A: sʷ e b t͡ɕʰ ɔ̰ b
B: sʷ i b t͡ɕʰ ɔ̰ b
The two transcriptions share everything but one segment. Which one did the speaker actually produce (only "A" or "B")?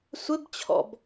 A